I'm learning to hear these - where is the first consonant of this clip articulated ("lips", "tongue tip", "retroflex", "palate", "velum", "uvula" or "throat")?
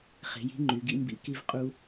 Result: uvula